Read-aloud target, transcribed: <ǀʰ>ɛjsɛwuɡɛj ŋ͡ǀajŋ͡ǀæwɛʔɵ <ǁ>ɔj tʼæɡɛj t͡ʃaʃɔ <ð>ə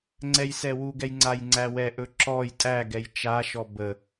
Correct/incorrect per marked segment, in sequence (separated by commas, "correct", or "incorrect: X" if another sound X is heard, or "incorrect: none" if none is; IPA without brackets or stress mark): incorrect: ŋ͡ǀ, correct, incorrect: b